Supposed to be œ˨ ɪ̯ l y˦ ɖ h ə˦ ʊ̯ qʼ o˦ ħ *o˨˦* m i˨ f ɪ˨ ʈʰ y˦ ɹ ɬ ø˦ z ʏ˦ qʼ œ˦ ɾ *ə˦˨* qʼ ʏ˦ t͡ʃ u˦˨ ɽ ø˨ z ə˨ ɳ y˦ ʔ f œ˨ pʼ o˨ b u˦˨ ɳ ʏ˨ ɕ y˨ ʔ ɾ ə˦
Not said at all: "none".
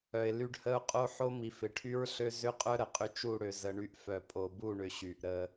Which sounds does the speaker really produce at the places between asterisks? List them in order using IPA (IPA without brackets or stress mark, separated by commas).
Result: o˦, ə˨